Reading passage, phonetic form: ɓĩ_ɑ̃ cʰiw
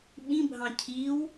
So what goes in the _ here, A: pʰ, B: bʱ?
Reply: B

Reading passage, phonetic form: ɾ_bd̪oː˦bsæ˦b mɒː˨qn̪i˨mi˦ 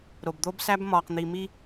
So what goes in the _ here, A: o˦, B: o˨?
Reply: B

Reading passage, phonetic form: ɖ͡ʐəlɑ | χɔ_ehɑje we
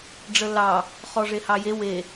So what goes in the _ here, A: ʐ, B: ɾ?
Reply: A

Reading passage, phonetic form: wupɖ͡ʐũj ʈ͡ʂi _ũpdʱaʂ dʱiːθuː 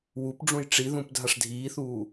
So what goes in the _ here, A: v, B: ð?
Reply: B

